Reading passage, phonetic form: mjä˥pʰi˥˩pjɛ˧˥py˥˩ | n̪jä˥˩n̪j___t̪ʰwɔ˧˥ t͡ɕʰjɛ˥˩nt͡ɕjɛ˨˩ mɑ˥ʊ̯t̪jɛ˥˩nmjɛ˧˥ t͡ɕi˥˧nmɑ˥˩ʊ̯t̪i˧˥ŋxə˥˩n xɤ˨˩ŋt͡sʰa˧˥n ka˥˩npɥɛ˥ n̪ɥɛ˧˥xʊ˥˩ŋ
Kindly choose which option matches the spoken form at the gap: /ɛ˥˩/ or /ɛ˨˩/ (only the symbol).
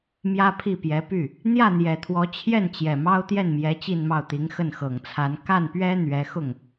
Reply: ɛ˨˩